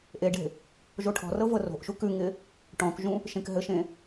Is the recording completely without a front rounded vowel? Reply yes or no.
yes